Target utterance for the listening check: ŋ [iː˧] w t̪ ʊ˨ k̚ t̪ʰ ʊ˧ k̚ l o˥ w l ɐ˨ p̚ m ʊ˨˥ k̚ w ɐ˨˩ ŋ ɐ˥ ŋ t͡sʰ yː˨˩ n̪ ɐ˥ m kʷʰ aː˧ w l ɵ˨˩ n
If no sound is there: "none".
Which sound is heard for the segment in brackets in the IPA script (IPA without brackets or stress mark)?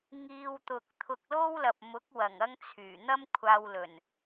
iː˧